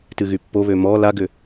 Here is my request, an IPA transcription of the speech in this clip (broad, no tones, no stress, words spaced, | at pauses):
tɨɣypːoβø mɔ laɡʏ